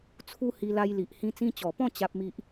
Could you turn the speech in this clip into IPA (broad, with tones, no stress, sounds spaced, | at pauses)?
t͡sʰ u˦ h i˧ l a˧ j l i˨ ʔ h ĩ˧ t͡s ĩ˧ t͡ɕ ɔ˨˩ p ɔ̃˥˧ t͡ɕ a˦ p̚ m i˦ ʔ